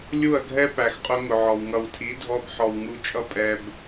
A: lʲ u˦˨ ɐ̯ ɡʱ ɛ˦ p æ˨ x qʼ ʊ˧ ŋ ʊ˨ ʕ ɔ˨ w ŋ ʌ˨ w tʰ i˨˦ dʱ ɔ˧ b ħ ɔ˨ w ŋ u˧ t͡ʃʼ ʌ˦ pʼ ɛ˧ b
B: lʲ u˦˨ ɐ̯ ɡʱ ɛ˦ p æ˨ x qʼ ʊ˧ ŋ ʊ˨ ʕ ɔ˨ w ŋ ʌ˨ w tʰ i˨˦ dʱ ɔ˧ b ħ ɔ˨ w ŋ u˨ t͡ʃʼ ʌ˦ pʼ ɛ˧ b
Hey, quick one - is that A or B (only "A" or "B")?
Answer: A